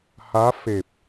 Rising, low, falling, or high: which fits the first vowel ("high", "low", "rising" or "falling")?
rising